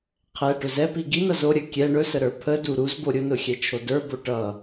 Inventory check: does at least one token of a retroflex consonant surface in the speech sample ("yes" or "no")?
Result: yes